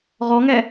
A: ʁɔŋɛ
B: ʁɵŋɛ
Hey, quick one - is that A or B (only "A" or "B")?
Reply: A